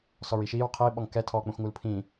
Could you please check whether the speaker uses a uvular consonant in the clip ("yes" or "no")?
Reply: yes